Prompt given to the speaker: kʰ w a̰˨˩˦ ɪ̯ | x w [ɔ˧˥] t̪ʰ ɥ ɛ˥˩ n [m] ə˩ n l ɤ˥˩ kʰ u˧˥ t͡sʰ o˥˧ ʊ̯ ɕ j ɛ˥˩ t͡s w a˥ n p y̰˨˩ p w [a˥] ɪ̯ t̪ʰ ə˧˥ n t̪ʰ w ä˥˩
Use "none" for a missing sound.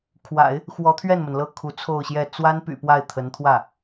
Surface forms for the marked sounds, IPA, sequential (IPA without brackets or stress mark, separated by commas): ɔ˧˥, m, a˥˩